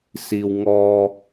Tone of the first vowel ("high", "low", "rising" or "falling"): low